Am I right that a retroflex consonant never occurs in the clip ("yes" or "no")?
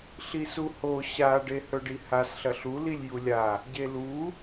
no